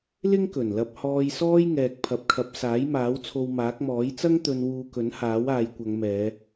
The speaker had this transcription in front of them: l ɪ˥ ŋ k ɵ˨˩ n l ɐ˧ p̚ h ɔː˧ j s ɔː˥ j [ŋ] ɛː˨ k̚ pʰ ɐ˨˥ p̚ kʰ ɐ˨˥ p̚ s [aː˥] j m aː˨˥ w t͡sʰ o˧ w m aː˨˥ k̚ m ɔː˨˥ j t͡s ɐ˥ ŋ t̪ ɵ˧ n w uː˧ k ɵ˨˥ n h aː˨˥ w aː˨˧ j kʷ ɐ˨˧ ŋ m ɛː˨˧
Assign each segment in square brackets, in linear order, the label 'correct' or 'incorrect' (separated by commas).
correct, incorrect